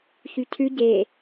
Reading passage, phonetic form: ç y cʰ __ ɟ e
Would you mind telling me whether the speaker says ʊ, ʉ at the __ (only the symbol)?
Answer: ʉ